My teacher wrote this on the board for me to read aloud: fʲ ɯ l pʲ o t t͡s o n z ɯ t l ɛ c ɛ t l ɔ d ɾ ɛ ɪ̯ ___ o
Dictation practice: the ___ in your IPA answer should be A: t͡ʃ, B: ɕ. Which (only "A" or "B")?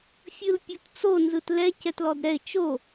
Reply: A